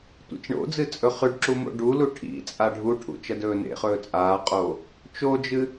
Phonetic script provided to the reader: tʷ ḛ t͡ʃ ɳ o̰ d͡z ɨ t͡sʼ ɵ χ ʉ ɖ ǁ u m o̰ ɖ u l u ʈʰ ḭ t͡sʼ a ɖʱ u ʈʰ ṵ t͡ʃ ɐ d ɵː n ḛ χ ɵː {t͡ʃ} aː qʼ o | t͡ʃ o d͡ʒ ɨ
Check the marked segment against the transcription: incorrect: t͡sʼ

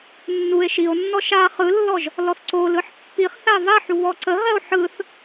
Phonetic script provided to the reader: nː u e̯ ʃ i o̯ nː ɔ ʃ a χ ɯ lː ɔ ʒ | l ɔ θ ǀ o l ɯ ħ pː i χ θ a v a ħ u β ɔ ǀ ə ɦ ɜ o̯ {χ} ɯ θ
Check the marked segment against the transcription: incorrect: ħ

